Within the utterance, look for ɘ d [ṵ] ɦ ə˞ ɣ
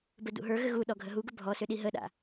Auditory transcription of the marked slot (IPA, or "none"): ṵ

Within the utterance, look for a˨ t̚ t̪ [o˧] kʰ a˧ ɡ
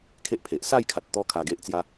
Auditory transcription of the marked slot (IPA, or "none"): ɔ˧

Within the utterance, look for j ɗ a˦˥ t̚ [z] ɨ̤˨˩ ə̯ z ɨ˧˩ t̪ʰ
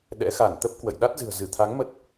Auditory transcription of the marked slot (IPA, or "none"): z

